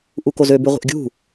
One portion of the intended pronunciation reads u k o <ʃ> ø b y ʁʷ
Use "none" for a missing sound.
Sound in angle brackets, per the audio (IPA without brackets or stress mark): z